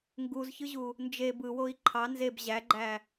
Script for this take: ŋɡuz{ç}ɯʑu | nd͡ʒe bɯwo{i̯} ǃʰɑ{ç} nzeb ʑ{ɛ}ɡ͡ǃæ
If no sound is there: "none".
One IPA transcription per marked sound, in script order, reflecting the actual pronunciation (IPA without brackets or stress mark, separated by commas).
ç, i̯, none, æ